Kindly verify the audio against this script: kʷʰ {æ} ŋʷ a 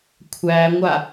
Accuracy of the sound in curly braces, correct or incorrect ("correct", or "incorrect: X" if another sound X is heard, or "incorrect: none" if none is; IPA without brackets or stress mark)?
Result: correct